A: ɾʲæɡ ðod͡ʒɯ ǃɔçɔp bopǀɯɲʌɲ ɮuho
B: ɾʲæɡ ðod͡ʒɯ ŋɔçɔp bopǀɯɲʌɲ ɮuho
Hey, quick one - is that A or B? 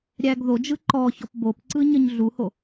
A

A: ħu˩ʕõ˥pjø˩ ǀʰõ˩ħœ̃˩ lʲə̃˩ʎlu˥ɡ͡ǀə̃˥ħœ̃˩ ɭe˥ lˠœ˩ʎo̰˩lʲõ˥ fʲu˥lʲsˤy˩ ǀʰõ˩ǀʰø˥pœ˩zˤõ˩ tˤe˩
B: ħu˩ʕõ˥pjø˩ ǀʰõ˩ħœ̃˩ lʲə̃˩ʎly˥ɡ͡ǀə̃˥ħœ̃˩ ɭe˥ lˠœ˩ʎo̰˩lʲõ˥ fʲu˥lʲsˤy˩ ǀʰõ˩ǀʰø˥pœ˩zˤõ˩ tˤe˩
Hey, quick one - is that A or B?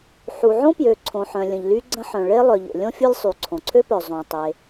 B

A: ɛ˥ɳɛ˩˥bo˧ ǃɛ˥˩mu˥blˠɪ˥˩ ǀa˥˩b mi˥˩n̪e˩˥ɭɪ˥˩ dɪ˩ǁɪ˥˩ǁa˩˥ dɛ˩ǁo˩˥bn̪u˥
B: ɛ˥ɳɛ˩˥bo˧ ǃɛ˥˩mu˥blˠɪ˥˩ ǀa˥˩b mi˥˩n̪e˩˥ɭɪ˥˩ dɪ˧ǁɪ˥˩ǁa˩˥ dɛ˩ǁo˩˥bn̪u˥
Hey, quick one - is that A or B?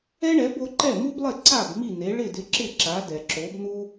B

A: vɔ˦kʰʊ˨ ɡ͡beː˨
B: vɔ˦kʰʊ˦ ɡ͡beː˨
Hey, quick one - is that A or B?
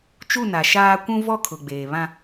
A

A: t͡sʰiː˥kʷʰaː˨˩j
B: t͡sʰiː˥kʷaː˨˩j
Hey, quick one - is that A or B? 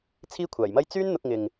A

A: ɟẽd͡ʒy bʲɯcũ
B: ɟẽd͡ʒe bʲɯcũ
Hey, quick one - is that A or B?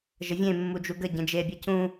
B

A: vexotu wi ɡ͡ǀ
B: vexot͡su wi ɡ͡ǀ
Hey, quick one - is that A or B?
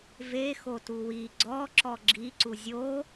A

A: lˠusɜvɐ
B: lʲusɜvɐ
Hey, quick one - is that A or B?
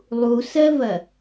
A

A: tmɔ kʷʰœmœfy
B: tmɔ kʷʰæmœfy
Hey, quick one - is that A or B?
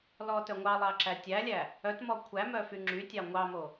B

